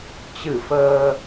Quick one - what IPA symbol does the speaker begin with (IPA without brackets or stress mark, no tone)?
t͡ɕ